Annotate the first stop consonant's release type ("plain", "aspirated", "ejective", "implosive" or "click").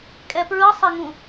ejective